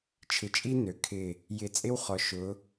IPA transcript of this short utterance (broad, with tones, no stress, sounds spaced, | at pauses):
t͡ʃʰ ɪ˨ t͡ʃʼ i˦ n ø˨ kʰ ɪ˦˨ | j ɪ˨ t͡sʼ ɪ˦ w χ ɔ˨ ʃ ʊ˨˦